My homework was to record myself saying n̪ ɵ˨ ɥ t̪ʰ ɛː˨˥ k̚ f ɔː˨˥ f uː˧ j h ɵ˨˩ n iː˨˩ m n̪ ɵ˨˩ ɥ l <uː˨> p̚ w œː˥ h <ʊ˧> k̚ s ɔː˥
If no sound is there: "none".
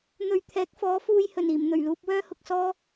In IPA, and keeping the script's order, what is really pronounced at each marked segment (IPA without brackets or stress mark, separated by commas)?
uː˧, ʊ˧